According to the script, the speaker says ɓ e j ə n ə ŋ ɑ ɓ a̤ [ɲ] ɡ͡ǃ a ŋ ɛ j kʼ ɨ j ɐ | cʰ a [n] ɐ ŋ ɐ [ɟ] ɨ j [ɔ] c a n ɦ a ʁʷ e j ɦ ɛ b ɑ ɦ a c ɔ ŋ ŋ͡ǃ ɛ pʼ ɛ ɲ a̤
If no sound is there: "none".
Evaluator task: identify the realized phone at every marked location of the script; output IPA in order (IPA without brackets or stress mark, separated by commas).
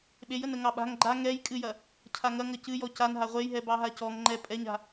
ŋ, ŋ, c, ɔ